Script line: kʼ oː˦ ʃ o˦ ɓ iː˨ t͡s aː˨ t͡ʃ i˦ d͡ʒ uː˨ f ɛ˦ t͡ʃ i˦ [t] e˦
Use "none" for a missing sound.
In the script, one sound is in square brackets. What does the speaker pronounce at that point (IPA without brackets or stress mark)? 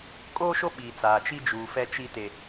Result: t